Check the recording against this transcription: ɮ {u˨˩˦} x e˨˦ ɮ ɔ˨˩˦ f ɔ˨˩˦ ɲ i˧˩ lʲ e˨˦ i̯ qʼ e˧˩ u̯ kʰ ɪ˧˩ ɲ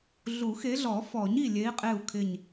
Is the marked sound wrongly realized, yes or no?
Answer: no